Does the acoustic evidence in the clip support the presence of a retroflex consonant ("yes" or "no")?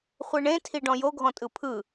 yes